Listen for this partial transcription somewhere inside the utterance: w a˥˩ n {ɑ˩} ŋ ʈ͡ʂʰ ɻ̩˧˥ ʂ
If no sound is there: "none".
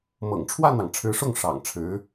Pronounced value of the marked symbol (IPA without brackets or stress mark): ɑ˩